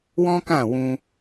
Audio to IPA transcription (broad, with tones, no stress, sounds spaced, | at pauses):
w ɔ̃˦ k ã˦˨ w ũ˧